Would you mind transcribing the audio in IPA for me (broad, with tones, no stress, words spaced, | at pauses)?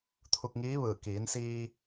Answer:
t̪ʰu˧k̚ŋiː˧˥ʋɯː˧˩ kiː˩˧nsiː˧